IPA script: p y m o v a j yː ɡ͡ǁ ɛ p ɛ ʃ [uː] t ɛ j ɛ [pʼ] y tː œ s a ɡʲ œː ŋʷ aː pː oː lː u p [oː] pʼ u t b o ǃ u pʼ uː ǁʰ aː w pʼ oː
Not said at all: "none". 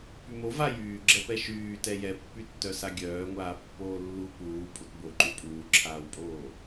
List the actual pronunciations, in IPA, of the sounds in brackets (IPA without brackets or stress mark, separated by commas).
yː, pː, uː